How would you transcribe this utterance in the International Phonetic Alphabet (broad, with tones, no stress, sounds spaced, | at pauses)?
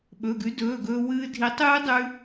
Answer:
ɓ ɵ˩˧˩ ɡ ʉ˨˥ d ɵː˩˧˩ ɡ ɵː˧ w ɨː˧ dʱ i˨˥ tˤ ɨː˦˥ dˤ ʉ˧